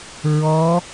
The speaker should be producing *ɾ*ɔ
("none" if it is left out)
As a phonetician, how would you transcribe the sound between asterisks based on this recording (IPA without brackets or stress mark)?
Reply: ɹ